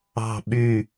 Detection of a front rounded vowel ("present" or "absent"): present